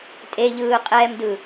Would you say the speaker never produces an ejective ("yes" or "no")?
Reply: no